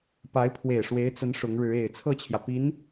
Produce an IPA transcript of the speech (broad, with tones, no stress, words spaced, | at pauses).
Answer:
pa˧˥ɪ̯pʰwe˨˩ɪ̯ ʂwe˧˥ɪ̯t͡sə˧˥n ʂʊ˧˥ŋɻɻ̩˧˥ e˨˩ɪ̯ t͡sʰɤ˥˩t͡ɕʰjä˩ pi˧˥n